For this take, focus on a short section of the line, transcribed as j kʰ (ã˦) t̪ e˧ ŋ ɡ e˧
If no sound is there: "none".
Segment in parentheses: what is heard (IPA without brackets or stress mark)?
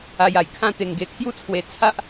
ã˦